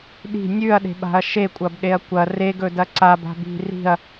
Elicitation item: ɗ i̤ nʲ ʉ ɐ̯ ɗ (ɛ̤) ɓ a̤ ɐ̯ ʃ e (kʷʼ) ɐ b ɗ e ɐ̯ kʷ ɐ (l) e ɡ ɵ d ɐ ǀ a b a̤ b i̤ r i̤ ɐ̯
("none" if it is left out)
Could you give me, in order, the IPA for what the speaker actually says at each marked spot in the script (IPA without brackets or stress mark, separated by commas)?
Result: e̤, kʷʼ, r